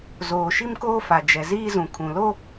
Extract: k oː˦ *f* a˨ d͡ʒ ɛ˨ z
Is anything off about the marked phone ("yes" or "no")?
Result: no